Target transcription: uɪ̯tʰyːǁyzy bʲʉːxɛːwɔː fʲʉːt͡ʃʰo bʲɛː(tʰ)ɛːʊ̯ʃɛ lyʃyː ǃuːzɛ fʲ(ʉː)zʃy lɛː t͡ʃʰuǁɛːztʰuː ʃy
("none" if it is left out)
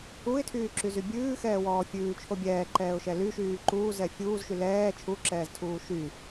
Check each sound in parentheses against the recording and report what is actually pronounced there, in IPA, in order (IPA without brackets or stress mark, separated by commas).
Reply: ǃ, uː